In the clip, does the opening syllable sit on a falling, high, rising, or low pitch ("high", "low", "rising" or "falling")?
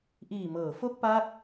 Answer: low